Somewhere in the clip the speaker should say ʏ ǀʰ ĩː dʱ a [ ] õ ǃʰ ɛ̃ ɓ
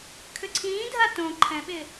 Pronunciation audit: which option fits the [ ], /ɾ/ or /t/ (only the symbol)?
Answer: t